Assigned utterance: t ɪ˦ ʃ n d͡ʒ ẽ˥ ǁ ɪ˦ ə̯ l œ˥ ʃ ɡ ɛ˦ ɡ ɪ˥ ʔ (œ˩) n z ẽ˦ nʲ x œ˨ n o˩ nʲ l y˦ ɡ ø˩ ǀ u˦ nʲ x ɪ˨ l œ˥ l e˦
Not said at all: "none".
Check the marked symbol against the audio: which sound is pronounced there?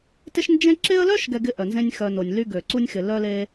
œ˩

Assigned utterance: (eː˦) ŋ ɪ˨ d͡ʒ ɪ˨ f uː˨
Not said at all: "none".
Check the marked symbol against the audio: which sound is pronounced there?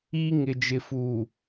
iː˦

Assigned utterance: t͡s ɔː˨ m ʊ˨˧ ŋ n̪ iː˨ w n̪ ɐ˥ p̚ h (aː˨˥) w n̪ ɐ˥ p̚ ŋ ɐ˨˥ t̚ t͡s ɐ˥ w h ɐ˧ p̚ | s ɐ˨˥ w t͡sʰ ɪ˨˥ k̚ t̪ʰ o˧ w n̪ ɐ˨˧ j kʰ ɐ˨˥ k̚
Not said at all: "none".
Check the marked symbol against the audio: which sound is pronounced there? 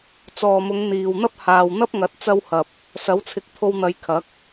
aː˨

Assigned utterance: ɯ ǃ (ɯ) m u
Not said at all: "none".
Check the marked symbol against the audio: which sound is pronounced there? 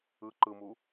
ɯ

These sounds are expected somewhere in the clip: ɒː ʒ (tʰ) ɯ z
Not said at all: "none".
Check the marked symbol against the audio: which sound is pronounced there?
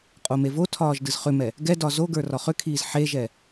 d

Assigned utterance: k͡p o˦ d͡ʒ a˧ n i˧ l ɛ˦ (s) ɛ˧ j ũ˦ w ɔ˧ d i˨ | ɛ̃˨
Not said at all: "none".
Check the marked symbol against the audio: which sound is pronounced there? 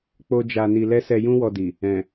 s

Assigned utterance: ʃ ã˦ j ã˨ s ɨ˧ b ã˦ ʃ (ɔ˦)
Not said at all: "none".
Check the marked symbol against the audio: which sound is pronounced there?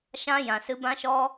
ɔ˦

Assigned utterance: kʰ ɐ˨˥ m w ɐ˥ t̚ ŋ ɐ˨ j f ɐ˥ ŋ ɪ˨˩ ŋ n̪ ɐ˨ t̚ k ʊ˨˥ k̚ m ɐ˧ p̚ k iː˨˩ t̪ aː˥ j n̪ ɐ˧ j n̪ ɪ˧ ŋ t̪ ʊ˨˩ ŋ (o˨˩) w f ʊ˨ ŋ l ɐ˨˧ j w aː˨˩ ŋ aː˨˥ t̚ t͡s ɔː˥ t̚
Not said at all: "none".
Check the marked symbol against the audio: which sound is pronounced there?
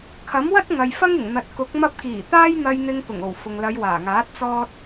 o˨˩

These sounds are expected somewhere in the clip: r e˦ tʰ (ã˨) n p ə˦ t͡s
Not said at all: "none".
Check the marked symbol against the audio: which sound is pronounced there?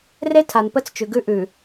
a˨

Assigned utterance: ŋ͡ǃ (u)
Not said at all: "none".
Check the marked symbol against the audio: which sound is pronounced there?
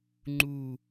u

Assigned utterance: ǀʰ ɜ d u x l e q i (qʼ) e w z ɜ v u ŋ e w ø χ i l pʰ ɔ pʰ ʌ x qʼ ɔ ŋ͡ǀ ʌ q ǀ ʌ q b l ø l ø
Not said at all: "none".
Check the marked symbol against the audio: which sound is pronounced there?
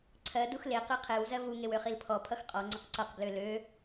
qʰ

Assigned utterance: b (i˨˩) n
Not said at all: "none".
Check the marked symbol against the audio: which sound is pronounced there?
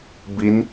i˦˥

